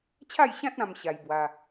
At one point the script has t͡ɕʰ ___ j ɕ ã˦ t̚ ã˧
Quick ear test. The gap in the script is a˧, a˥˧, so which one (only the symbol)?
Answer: a˥˧